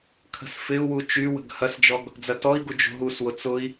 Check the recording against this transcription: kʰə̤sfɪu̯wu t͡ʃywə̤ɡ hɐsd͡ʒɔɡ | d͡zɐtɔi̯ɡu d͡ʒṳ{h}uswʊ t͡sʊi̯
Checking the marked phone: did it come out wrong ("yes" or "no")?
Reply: yes